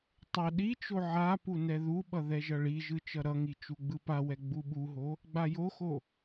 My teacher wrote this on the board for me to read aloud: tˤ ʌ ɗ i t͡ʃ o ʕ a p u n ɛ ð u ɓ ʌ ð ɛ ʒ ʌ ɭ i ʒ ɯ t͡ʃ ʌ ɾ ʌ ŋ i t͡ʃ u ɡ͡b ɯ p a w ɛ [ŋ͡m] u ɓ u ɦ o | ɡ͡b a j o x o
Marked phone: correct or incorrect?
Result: incorrect